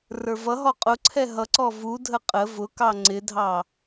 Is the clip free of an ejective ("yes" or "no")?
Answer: no